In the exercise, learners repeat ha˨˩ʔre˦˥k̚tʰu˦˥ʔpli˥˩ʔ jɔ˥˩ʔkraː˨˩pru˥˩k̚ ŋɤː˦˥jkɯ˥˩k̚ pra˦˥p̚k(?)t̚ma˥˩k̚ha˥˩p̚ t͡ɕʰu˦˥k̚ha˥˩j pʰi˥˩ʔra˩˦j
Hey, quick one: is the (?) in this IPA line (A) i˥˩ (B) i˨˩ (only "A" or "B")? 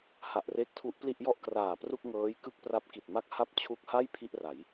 B